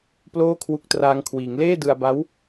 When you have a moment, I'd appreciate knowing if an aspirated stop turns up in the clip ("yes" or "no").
yes